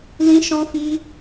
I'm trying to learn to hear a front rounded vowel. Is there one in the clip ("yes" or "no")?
no